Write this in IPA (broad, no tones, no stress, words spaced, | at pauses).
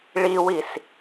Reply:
ɭiwis